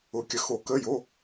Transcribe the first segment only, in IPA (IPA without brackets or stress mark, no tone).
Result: ʊ